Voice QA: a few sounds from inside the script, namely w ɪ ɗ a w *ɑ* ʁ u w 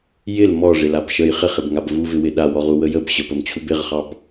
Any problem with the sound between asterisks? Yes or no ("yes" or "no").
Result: yes